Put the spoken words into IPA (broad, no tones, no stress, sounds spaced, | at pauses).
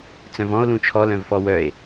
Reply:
t͡s œ̃ v ɔ̃ o̯ l ũ t͡ʃʰ ɔ l œ̃ v f ɔ w œ e̯